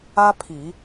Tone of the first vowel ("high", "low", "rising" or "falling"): high